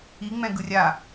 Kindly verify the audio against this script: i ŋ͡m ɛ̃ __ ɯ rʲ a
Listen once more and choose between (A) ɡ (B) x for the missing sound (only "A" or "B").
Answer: A